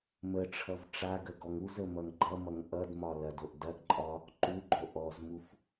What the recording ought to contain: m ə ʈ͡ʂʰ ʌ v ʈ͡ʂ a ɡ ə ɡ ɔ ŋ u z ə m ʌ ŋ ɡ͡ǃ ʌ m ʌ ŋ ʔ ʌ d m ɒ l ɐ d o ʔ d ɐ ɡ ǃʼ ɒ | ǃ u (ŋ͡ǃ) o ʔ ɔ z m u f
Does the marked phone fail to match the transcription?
yes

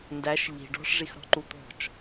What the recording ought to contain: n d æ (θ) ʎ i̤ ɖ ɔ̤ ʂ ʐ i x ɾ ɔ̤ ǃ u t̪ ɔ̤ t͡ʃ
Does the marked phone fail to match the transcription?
yes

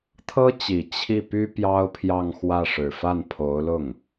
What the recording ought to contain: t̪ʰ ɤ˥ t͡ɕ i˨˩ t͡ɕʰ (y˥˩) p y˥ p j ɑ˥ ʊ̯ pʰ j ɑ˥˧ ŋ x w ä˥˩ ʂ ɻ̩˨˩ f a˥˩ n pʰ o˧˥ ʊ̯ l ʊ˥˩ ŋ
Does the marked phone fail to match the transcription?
yes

